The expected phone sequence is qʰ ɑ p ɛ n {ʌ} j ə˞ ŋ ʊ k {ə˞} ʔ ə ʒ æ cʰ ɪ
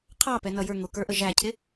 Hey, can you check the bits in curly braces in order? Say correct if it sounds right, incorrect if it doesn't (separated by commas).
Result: correct, correct